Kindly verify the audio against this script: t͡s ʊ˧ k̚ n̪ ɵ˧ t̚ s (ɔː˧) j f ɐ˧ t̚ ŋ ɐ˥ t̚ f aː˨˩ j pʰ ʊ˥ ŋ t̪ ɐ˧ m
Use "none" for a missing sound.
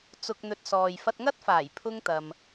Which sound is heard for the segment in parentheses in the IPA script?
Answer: ɔː˨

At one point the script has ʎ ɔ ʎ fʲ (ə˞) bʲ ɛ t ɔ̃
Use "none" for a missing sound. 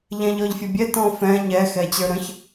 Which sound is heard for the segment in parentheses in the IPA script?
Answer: ʌ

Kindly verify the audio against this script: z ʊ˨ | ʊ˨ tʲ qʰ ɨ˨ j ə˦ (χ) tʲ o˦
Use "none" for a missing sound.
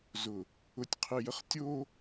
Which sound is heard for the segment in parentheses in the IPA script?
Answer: χ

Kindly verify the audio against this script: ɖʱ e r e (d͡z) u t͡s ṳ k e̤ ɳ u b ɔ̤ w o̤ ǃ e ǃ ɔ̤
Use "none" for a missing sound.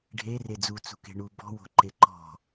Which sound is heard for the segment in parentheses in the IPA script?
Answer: d͡z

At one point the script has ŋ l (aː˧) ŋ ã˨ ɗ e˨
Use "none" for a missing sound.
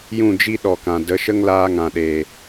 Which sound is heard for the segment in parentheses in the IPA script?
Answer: aː˧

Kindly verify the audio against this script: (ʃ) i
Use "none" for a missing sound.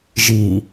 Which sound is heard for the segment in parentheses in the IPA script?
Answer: ʒ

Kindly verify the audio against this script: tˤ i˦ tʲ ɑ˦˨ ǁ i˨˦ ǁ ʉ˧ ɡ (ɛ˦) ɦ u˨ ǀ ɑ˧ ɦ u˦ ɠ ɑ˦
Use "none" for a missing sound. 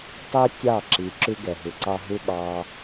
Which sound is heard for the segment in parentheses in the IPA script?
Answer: ɛ˨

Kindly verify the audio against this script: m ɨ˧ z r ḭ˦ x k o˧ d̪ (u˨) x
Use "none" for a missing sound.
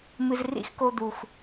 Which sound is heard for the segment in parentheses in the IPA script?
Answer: u˨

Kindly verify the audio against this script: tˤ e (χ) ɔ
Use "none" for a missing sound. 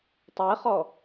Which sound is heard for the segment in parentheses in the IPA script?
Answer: χ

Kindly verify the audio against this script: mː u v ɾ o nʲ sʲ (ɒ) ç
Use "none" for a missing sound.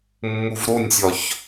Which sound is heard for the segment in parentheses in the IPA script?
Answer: ɒ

